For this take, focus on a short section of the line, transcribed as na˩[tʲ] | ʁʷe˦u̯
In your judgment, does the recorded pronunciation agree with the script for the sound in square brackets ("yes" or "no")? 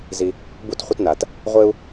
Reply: no